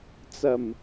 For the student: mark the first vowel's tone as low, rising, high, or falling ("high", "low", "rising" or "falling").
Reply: low